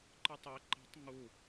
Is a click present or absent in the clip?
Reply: present